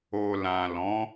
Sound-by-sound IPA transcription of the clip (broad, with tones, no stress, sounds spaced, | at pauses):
o˨ l ã˨ l ɔ̃˨˦